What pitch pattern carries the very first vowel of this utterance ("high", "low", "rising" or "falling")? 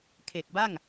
low